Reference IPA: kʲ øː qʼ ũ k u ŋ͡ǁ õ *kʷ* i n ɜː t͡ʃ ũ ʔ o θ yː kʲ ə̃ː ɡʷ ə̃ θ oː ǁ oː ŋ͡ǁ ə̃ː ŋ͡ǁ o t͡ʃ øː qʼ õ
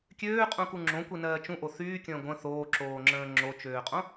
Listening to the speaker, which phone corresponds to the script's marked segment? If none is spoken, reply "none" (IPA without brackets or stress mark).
kʷ